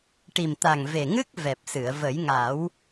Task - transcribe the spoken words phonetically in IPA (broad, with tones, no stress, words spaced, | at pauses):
ʈi˨˩mt̪a˨˩ŋve˨˩ŋɨ˦˥k̚ vɛ˨˩p̚sɨ˨˩˨ə̯ və˨˩˦jŋa˨˩˦w